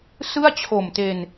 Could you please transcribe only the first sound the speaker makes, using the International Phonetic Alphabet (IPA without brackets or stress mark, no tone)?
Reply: s